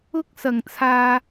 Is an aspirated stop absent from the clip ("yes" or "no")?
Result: no